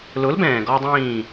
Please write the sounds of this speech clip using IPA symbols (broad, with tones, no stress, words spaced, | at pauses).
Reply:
lʊ˨˥lbɛ̃ː˩ɡɔ˧dˤĩː˧˩